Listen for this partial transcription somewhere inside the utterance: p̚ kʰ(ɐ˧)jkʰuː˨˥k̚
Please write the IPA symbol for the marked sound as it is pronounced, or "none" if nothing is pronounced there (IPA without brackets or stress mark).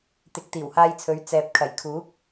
ɐ˨˩